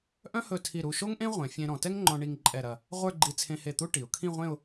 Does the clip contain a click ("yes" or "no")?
yes